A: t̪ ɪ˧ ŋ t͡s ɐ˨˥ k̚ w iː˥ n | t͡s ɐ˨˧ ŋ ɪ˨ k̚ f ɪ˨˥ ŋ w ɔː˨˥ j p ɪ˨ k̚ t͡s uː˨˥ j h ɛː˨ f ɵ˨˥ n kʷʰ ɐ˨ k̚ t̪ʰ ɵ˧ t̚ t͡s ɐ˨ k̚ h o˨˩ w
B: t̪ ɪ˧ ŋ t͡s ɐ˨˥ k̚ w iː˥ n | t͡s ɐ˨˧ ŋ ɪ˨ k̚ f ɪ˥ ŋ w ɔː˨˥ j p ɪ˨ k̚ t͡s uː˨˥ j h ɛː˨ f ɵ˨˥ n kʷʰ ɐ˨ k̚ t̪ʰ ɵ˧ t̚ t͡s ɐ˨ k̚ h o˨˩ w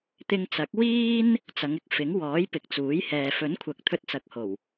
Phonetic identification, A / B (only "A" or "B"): A